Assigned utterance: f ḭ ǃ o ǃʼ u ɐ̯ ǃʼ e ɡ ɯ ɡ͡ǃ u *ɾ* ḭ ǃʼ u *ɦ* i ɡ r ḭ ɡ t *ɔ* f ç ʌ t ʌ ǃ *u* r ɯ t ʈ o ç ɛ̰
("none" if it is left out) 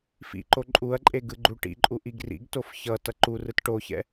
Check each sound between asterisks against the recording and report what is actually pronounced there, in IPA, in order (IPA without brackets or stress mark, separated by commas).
ʈ, ʔ, o, u